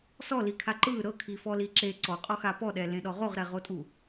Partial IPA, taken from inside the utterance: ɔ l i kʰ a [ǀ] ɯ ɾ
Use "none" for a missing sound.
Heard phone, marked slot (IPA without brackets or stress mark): ǃ